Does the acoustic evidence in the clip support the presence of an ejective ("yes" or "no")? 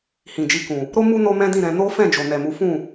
no